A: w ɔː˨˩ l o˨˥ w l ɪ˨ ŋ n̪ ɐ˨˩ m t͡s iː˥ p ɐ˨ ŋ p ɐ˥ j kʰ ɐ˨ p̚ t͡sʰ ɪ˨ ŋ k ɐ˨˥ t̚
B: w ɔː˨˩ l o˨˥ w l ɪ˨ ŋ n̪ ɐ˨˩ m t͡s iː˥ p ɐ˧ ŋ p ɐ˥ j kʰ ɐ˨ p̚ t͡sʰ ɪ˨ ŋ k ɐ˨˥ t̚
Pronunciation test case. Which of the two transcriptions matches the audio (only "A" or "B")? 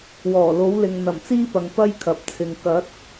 A